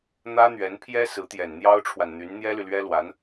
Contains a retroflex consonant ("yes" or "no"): yes